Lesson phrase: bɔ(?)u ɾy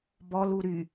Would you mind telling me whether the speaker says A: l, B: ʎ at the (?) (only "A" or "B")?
A